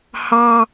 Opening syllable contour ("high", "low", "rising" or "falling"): high